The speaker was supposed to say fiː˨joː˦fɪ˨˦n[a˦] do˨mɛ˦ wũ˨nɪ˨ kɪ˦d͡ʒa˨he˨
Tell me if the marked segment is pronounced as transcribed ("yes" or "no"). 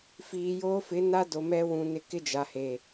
yes